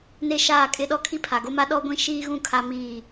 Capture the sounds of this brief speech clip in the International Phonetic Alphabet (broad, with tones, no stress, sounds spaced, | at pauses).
n e˦ ʃ aː˦˨ kʼ ɪ˦ ɗ ɔ˦ kʰ i˦ pʰ a˨ ɡ o˦ m a˦ ɗ ɔ˦ ɡʷ ĩ˦˨ ʃ iː˦ ɣ ũ˦˨ kʰ a˦ m iː˦˨